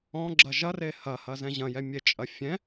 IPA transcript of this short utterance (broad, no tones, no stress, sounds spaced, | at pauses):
ɔ̃ ɡ͡ǁ ɐ ʒ ɐ r e h ɐ h ɐ z ɛ̃ ʑ ɐ̃ j ɛ mʲ e t͡ʃʼ ɐ fʲ ɛ̃